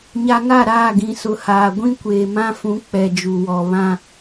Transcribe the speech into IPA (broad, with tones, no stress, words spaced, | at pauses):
ɲa˨ŋa˦˨ ɾaː˦˨ ɡĩ˨sʊ˨haː˨ ɡʷĩ˦kʷeː˨mã˦fũ˨˦ k͡pɛ˨d͡ʒu˨wɔ˨ βã˦